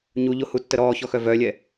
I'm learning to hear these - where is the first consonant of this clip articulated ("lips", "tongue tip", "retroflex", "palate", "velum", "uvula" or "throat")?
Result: palate